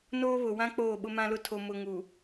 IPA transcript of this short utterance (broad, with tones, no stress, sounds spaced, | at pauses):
n oː˦ β ʊ˨ w ã˦ k͡p oː˦˨ ɓ ʊ˦ m ã˦ l ʊ˦ tʰ o˨ m ʊ˨ ŋ u˨